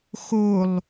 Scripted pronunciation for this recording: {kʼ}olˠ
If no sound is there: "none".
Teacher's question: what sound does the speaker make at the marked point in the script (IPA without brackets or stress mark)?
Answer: x